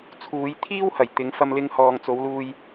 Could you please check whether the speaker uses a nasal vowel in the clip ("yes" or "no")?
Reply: no